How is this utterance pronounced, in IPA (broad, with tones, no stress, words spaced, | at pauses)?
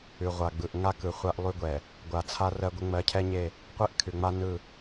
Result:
ʉ˨ʁʷa˨ ɡ͡bɯ˨ʔŋa˦ kɯ˨χʷa˦ʔlˠʉ˦ɡʷɛ˨ | ɡʷa˨t͡sʰa˦ rɜ˦ɡʷə˦ ŋ͡mɜ˨˦cʰɛ˦ɲe˦˨ | qʷe˦ʔkʰʉ˨ŋ͡ma˦ nɯ˦˨